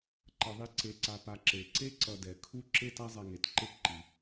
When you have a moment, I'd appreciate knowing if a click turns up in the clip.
yes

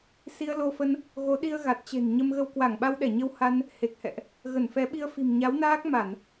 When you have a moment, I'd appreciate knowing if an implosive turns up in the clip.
yes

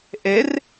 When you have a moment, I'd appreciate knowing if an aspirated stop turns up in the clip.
no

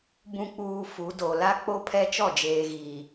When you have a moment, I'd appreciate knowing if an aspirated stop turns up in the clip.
yes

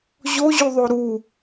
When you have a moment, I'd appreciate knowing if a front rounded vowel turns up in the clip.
no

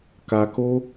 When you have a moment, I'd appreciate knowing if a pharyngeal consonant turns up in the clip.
no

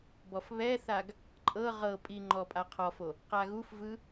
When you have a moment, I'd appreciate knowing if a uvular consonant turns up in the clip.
yes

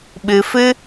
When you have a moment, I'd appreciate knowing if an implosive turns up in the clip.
yes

